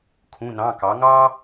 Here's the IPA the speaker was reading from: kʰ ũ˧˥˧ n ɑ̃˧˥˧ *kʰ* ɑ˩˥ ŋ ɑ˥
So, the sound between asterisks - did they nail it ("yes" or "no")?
no